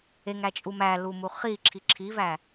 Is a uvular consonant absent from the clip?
no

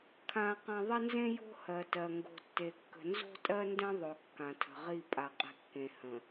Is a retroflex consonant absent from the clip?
yes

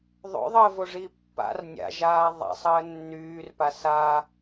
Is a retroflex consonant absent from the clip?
no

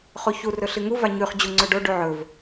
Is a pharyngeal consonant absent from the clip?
no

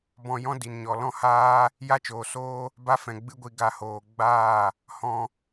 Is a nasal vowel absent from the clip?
no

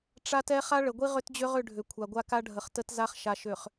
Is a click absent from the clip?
yes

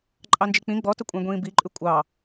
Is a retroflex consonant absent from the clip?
yes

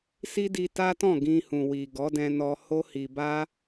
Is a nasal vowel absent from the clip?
no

